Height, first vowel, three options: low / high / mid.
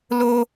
mid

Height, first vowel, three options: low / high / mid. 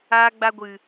low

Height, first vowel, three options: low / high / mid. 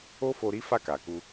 mid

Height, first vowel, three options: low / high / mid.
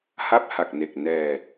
low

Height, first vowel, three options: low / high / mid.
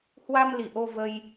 low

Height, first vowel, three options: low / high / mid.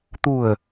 high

